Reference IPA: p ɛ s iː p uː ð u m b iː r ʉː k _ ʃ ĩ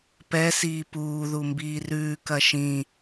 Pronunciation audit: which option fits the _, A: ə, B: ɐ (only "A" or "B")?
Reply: B